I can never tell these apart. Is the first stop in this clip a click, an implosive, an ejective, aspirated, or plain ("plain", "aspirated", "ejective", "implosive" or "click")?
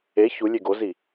plain